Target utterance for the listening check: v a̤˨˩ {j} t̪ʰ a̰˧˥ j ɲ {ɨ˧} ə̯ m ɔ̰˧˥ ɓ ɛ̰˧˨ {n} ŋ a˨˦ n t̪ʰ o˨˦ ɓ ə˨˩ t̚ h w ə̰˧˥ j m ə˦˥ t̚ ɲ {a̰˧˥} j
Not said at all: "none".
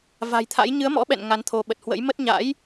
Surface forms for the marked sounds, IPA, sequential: j, ɨ˨˦, n, a̰˧˥

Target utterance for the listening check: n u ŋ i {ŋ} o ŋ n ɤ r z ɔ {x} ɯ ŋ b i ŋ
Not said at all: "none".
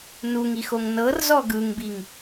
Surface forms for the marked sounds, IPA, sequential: x, ɡ

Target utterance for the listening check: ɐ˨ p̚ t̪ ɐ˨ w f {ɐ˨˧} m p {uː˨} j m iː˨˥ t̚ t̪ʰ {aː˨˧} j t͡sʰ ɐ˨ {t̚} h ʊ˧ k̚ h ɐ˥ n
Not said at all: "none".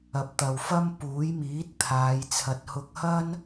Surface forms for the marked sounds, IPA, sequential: ɐ˥, uː˨˥, aː˨˧, t̚

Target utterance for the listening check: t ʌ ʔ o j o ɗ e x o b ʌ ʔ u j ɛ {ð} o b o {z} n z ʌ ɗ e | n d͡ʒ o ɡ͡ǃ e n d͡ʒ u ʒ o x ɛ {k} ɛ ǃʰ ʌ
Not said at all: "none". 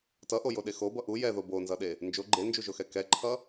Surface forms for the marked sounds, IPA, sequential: ð, none, k

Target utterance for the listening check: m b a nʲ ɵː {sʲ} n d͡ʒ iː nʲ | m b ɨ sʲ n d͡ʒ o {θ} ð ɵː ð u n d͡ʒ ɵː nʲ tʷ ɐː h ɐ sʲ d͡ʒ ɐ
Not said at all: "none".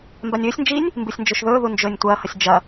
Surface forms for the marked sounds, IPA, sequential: sʲ, ʃ

